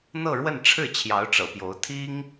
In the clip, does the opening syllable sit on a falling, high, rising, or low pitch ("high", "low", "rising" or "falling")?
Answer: falling